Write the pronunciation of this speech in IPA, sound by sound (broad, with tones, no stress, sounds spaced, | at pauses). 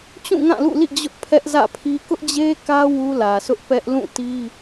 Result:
t͡ɕ ũ˦˨ ŋ ã˦˨ l ṵ˦˨ l ḭ˦˨ d͡ʑ ʊ˦ ʔ pʰ ɛ˦ ʔ z ä̰˦˨ pʰ i˦ k ʊ˦ ʔ d͡ʑ e˦ k ä˦ w u˦ l ä˨ sʰ ʊ˦ ʔ p ɛ˦ ʔ l ũ˦˨ t i˦